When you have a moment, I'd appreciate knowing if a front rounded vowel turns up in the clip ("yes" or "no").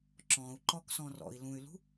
yes